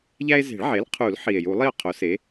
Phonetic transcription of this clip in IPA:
ʎ æ˦ e̯ z e̤˨˩˦ ɭ ʕ e˩˥ l qʰ u˨˩˦ l ħ i˨˩ e̯ j u˨˩˦ lˠ i˥˩ o̯ qʰ o˩˥ s e˩˥

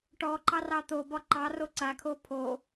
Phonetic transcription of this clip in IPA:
ʈ ɔ ǃ ɑ r ɑ t̪ o b ɒ ǃ ɑ r o ǀ a kʰ o pʰ o

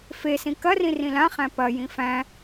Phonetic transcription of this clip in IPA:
f e s ĩ k ɐ r ĩ r ĩ l ã χ æ̃ p ɐ j ĩ f æ̃

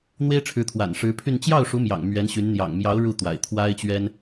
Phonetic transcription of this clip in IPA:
n̪ w e˥ ɪ̯ ʈ͡ʂʰ ɻ̩˧˥ t̪ʰ w a̰˨˩ n ʂ ɻ̩˧˥ pʰ y˥˧ n t͡ɕ j ɑ˥˩ ʊ̯ ʂ u˧˥ m j ɑ̰˨˩ ŋ m ɥ ɛ˧˥ n ɕ y˧˥ n n̪ j ɑ̰˨˩ ŋ m j ɑ˧˥ ʊ̯ ɻ u˥˩ t̪ w a̰˨˩ ɪ̯ t̪ʰ w a˥ ɪ̯ t͡ɕ ɥ ɛ˥ n

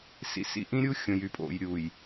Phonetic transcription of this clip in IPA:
s ḭ˨ s ḭ˨ ʔ ĩ˦ ɾʲ u˦ xʲ õ˨ j y˨ pʼ o̰˨ j ɾʲ uː˨ j

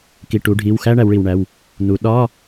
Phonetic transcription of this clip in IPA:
k i˩˧˩ ʈ u˩˧ ɖʱ i˩˧˩ w x æ˥ ɳ æ˩˧ w ɭ i˩ w ɳ æ˩˧˩ w | n u˩˧ ɗ ɒ˧˥˧

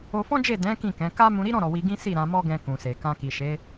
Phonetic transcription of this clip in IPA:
o˧ f ɔ̃˦ d͡ʒ e˦˨ d ɛ̃˨˦ k ĩ˦˨ k ɛ̃˨˦ k a˦ m ũ˧ ɾ i˦ ɾ ɔ̃˦˨ ɾ ɔ˨ w i˧ ɡ ĩ˦ s i˦˨ ɾ ã˧ m ɔ˦ ɡ ɛ̃˧ k ũ˨ s e˨ k ã˧ k i˨ ʃ e˨˦

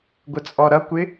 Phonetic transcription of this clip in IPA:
ɡʷ ə t͡sʼ ɔ ɾ ʌ kʷ ɪ

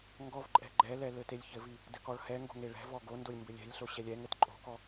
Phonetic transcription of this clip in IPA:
ŋ ɡ ɔ v ǃʼ ɛ̤ ɡ͡ǃ ɛ l ɛ l ɘ t e lʲ ç ɘ v i | d ɘ k ɔ ɭ h ɛ ŋ ɡ o̤ ŋ e ɭ ɛ̤ v ɔ ɡ o n d o lʲ m b ɘ lʲ ɛ̤ lʲ ɬ o ɕ ɛ lʲ ɛ ŋ ɘ t ǃʼ o̤ k ɔ

